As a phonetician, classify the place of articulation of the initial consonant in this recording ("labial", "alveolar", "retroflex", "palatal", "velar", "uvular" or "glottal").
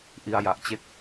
glottal